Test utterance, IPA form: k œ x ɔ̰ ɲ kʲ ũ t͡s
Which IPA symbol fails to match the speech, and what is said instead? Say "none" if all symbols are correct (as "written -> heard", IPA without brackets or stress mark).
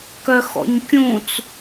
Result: none